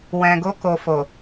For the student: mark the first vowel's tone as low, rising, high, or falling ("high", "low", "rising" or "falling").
low